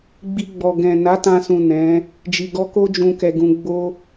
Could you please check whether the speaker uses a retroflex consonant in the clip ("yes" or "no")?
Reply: no